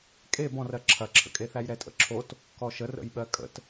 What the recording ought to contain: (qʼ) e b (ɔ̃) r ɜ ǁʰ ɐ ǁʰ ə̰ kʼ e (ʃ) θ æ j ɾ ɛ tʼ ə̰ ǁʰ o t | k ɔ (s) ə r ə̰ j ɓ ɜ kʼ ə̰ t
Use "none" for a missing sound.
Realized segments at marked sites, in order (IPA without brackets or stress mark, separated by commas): kʼ, ɔ̃, none, ʃ